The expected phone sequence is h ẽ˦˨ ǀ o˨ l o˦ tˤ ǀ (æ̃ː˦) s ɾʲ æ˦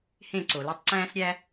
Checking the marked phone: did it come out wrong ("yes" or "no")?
no